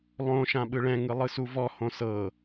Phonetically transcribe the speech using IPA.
lˠ õ ʃ ã ɓ ɯ ɭ ɛ̃ ŋ ɯ lˠ ɯ s u v ɔ h õ s ɤ

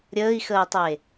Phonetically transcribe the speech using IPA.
ɾʲ əː i̯ x əː tˤ e

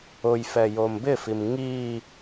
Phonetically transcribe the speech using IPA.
ʊ j f ɛ j o m b ɪ f i m ŋ i

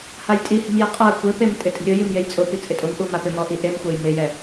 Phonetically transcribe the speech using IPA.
h a j tʼ i h i̤ m j ɛ qʼ a kʷ e p e m tʼ ɪ tʼ i̤ ɾʲ ʊ j i m j e j t͡sʼ ʊ p i t͡sʼ ɪ tʼ ʊ m ʔ u m a p ɪ m ɔ ʔ i ʔ e m xʷ a j m ɪ j ɛ

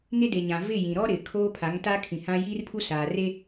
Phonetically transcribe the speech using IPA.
ŋ e˦ d e˨ ɲ ã˨ v ɪ˦˨ j ĩ˨ ɾ ɔ˦ ɾ ɪ˨ kʰ oː˦ pʰ a˨˦ ŋ t a˦ kʰ ĩ˨ h ã˦ j iː˦ r pʰ u˦ s aː˨ r e˦

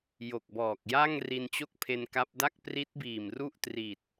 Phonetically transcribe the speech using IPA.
j o˨˩ k̚ b ɔː˨˩ k̚ j a˥˩ ŋ r i˧ n t͡ɕ o˥˩ k̚ pʰ e˧ n k a˦˥ p̚ d a˥˩ k̚ p r i˦˥ t̚ b iː˨˩ m r u˥˩ ʔ t r i˨˩ t̚

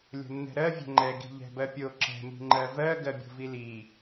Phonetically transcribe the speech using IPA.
lʲ o̤ nː ɛ̤ ɾ ɜ vʲ ɛ̤ ŋ͡ǃ ɛ ɡ i̤ ʎ ɛ̤ b ɜ pʲ o ǁ ɛ̤ m i̤ ŋ͡ǃ ɜ v ɜ ɡ ɜ bʲ o̤ v i l i

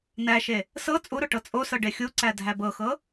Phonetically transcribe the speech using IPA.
n æ ʃ e | s ɤ t͡sʼ u ɾ o ʈ ɤ t͡sʼ o s ɤ ɖ e xʲ u ǀ æ dʱ æ b ɤ x ɤ

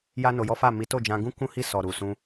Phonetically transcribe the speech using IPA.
j a˦ n o˧ j ɔ˦ f a˦˨ m i˨˦ t o˦˨ d͡ʒ ã˧ ɡ ũ˦ k ũ˦ h i˦˨ s ɔ˨ ɾ u˨ s ũ˧

